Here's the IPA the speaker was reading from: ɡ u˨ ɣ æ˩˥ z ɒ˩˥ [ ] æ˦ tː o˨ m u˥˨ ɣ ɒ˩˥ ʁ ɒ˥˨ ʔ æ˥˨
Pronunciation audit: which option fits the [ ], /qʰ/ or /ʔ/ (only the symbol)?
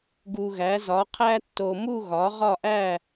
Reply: qʰ